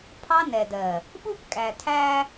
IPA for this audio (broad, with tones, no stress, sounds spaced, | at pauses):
pʰ ɑ˦ n ɛ˨ d ɜ˨ | ɓ u˦ p kʼ æ˨ tʰ æ˦